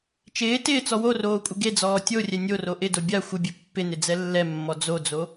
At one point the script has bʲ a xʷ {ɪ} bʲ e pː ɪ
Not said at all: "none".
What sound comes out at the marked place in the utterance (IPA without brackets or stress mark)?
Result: ɪ